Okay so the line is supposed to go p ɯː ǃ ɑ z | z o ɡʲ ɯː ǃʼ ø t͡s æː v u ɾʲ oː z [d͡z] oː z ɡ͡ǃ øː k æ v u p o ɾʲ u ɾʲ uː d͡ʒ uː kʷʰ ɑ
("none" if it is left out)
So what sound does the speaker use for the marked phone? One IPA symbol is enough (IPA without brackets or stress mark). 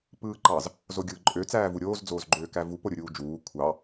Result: d͡z